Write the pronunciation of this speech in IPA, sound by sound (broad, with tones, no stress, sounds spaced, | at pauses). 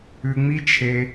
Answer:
ʉ˧ ŋ͡m i˥ t͡ʃʰ e˧